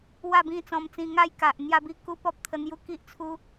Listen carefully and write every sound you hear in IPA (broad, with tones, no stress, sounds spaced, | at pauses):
w a˥˧ b ĩ˥˧ t͡s ɔ̃˧ m t͡s ĩ˧ ŋ a˥˧ j k a˨ ʔ n̪ j a˥˧ b i˥˧ k u˦ p ɔ˦ p̚ t̪ʰ ə˧ n̪ j u˥˧ k i˦ ʔ t͡sʰ u˦